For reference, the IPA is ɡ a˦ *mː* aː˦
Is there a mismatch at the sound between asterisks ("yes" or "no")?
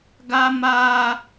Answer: yes